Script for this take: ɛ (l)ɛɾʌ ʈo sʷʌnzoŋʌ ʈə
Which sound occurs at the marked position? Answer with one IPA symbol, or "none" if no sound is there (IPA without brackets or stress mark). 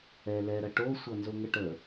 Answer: l